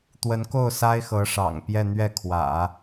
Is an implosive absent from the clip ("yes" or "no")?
yes